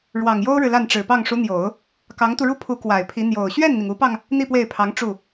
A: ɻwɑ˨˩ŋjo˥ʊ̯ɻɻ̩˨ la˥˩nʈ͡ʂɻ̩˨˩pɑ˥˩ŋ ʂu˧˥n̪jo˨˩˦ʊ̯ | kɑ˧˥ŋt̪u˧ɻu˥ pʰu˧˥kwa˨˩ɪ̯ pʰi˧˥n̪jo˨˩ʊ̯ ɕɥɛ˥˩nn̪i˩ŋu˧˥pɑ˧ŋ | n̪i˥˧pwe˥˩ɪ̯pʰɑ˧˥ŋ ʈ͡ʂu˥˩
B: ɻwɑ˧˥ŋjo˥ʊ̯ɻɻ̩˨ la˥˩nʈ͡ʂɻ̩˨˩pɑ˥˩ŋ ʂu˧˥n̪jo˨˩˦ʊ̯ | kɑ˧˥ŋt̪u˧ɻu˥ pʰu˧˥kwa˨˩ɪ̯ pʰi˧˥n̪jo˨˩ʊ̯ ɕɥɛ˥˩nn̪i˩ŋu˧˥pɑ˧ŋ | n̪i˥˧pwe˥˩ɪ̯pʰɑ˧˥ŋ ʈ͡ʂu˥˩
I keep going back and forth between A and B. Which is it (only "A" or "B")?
A